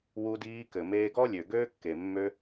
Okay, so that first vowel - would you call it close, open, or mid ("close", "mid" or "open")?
close